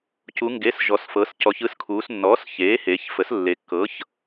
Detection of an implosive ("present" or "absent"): absent